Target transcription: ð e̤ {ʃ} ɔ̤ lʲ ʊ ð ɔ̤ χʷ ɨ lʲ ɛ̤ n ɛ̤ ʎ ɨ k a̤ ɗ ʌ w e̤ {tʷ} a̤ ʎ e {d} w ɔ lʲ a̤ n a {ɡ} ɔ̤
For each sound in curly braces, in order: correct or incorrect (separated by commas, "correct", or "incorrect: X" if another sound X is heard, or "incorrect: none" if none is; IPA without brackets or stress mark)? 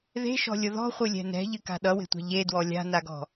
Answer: correct, correct, correct, correct